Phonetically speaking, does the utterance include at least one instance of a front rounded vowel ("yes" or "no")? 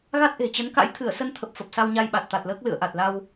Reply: no